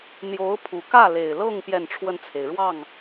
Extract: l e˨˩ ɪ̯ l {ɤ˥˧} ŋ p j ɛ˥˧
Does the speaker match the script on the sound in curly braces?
yes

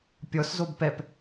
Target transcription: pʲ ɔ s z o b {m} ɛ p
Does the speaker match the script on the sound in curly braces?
no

